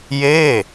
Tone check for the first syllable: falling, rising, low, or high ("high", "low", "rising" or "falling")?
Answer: falling